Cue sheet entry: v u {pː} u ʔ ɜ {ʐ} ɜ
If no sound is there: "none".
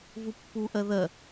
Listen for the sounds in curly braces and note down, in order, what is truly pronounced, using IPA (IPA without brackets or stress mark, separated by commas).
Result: pː, ð